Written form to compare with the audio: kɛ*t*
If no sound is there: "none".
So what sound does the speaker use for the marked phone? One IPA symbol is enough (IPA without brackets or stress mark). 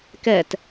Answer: t